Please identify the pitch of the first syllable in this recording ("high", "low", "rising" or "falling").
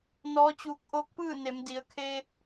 rising